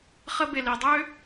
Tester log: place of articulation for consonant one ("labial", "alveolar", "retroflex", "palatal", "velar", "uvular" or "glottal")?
uvular